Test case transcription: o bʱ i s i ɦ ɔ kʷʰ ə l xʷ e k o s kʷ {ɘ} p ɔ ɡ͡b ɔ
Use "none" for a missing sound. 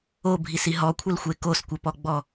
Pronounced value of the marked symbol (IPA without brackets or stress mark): ɘ